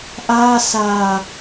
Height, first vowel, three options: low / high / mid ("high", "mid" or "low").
low